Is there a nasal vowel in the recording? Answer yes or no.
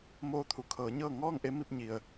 no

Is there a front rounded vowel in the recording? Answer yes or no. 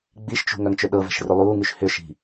yes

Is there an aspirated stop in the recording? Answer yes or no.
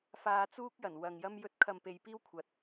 yes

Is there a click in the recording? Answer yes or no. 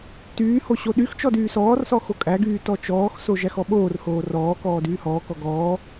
no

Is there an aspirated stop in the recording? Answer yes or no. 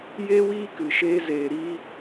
no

